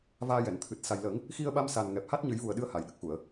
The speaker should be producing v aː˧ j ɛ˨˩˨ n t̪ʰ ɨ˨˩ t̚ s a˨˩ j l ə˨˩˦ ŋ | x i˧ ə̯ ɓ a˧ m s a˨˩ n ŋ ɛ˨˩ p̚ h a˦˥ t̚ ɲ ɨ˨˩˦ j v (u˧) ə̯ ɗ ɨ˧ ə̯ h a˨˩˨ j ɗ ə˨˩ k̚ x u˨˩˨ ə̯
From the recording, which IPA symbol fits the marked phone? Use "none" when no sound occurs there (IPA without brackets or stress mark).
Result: u˨˩